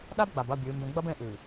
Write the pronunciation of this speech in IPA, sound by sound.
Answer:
ɗ a˦ b ɡ͡b a˨ b ɐ˦˨ bʲ ɨː˨˦ m b ẽ˦ ɡ͡b ɐ˦ b ẽ˦ ʔ ʉ˨

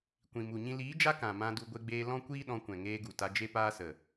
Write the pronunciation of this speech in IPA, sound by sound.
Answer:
kʷ ĩ˨ m u˨ ɲ ĩ˦ l iː˨˦ d͡ʒ a˦ k ã˨ m ã˧ d u˧ ɡʷ e˦ ɡ͡b eː˦ l ɔ̃˦ kʷ iː˦ ɗ ɔ̃˧ kʷ ɛ̃˨ ŋ eː˧ ɡ u˨ t a˧ d͡ʒ e˦ p aː˦ s ə˨

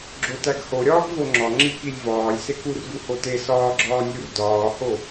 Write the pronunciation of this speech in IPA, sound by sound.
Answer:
ɡ͡ǁ o t æ ɡ h o ɾʲ ɒː ɡ v o ŋ͡ǁ ɒ ŋ͡ǁ i k i lʲ v ɒː lʲ s e k u r ɡ u h o t e s ɒː ɡ͡ǁ ɒː nʲ u r d ɒː h o

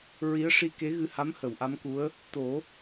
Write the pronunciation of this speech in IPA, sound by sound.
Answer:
ɹ i˧˥ ə̯ ʂ i˧ k e˧˥ ɣ ɨ˧ h a˧˥ m h ə˨˩˨ w ʔ a˧˥ m k u˧˥ ə̯ | t̪ o˨˩˦

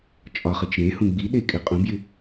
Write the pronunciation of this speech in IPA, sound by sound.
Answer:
t͡ʃʼ ɒ χ ɯ t͡ʃ ɾ ẽ h ũ ɡ͡b i ɗ e kʼ ɪ qʼ ũ b j ɪ

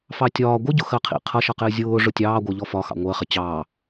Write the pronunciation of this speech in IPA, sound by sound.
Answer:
f ɑ tʲ ɒː ɡʷ ɪ ɟ ʊ x ɜ qʰ ḭ qʰ ʌ ʃ ʌ q ɪː zʲ ʊː ʐ ʊ tʲ ɑː ɡʷ ɜ ʎ ɔ f ɒ x ɑ̰ ŋʷ ɜ χ ɪ t͡ɕ ɑː

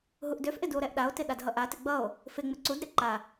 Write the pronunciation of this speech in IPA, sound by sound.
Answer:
ɦ u ʔ d ø f ʔ ɪ d u o̯ ɾ ɛ ʔ ɗ a o̯ t ɪ ɗ a d ɦ ʌ ʔ a t ɪ ɡ͡b ʌ o̯ | f ɪ ŋ͡m ɪ ǀ u d ɾ ɪ ǃ a

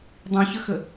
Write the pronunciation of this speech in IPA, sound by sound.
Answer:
dˤ ĩ ç ə x ə

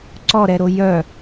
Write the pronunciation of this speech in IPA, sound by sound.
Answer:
ǀ ɔ ɾ ɛ ɾ o j œ

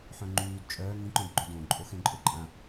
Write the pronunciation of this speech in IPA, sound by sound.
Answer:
ħ œ̃ ŋ͡ǃ yː d t͡ʃʼ œː ŋ ĩ ǃ õ d ɡ͡ǃ ø d õ ǃʼ o x ẽ ǃʼ ø ǃʼ ã

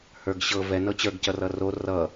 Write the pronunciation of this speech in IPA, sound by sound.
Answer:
h ə˞ ɡ ɕ ɤ v ɛ n ɤ t͡ɕ ə˞ ɡ c ʌ r ʌ r o r ʌ

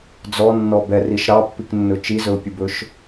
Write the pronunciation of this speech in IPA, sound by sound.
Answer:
d͡z ɔ nː ɔ b ɛ r i ʃ ɾ ɑ pː i k nː ɵ t͡ʃ i z ɵ ʊ̯ pʲ u b ɵ ʃ

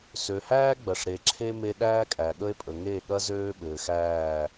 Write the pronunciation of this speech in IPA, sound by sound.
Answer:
s ø˨ h æː˦ ɡ͡b ɐ˨ ʂ ɾ e˨ ǁʰ e˦ m e˦ ɗ æː˦ kʼ æ˨ ɠ ə˦ e̯ pʼ ə˨ ŋ e˦˨ ɠ ɐ˦ z øː˦ ɓ ɘː˨ x æː˦˨

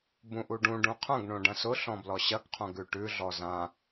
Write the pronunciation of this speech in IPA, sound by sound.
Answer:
b ũ ʔ u ɖ ũ ɖ ũ qʰ ɐ̃ ɡ ɳ õ ɖ ɐ̃ s ʊ ɬ ɔ̃ b l ɔ ɕ ɐ ɡ qʰ õ ɡ ʉ ʈ ʉ ɮ ɔ z ã

